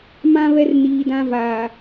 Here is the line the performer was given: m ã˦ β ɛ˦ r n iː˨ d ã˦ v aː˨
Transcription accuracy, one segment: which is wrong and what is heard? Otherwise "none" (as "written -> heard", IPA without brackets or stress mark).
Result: none